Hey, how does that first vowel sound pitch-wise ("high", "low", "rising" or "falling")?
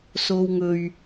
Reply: low